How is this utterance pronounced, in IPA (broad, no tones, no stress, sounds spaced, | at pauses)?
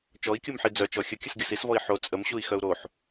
t͡ʃ ɔ i̯ kʲ u m ħ i d͡z œ t͡ʃ ɔ xʲ ə kʲ ə s ɡʲ o s i s v ɔ i̯ ħ o t͡sʼ ə m ɕ u i̯ x œ u̯ ɾ o ħ